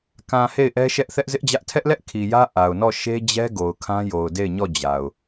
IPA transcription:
k ã˨ h e˦˨ ɪ̯ ʔ ɛ˦ ʃ ɛ˦ ʔ θ ɛ˦ ʔ z ɪ˦ ʔ d͡ʑ ä˦ ʔ tʰ ɛ˦ ʔ l ɛ˦ ʔ kʰ i˨ j ä˦ ʔ a˨ ʊ̯ n ɔ˦˨ ʃ e˦ d͡ʑ ɛ˦ ɡ o˨ ʊ̯ kʰ ã˦ j o˨ ʊ̯ d e˦˨ ɪ̯ ɲ ɔ˦˨ d͡ʑ a˨ ʊ̯

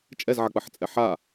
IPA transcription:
t͡ʃʼ ɛ z ʕ ɐ k͡p ɐ ħ t͡sʼ ɛ ħ a

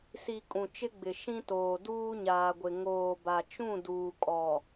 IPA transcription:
s i˨ kʼ ũ˨ t͡ʃ ɪ˦ ɡ͡b ɪ˨ ʃ ĩ˦ t oː˨ d uː˦ ɲ aː˨ ɡʷ ɪ˨ ŋ oː˨ b a˨ t͡ʃ ũ˦˨ d uː˨ kʼ ɔ˨

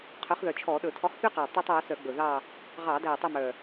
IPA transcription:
qʰ œ˨˥ χ ð œ˨˩ t͡ʃʰ ɔ˧˩˧ ɗ ɵ˧˩˧ tʰ ɔ˨˥ χ θ y˦ q ɑ˨˩ tˤ æ˦ tˤ w œ˨˥ s œ˧˩˧ ɡ͡b ɵ˨˩ ð ɑ˦˨ | ʁ ɑ˧˩˧ d æ˨˩ tˤ ɵ˦˨ m œ˨˩

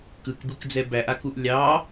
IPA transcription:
k ɯ k b ɯ k d͡z ɛ b æ ʔ a k u ʔ lʲ ɑ

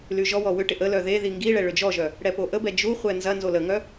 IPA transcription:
l y ʒ ɔ w ɔ w ʏ ʈ ɪ ʔ ə l œ ð e ð i ŋ ɡ i ɭ ɛ ɭ ʏ d͡ʒ ɔ ʒ œ | ɽ ɛ p o ʔ ə b ɛ d͡ʒ u χʷ ɛ n z ɐ n z o l ə ŋ œ

